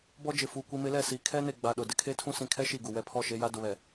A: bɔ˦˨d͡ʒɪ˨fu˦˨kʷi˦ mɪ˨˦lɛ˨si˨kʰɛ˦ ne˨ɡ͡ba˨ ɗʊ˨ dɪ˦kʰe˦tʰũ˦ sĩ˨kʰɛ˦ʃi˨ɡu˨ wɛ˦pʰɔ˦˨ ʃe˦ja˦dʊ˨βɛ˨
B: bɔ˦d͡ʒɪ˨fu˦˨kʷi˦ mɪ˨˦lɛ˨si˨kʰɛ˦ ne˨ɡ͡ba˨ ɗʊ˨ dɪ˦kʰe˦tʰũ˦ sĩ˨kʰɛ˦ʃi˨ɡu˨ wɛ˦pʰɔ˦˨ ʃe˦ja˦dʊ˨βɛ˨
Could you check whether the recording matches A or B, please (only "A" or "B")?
B